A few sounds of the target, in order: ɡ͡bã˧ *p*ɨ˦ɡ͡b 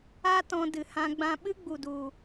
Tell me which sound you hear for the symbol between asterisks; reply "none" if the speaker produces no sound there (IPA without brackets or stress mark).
ɓ